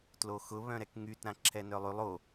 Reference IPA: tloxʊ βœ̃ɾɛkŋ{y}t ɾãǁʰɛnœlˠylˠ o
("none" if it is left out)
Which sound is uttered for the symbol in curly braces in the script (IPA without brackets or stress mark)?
y